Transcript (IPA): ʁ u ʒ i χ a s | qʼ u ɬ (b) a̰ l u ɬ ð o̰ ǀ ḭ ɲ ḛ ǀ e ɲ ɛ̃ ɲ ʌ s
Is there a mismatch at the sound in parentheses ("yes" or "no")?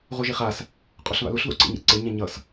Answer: yes